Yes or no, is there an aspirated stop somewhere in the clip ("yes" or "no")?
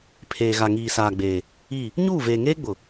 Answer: yes